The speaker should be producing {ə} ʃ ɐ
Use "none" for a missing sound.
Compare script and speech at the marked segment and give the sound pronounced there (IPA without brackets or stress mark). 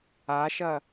a